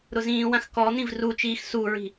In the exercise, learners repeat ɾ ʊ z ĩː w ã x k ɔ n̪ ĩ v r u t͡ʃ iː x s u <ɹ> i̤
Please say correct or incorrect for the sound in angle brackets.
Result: correct